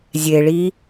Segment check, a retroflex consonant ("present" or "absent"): present